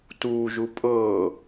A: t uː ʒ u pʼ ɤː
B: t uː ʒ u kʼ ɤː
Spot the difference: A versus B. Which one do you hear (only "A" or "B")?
A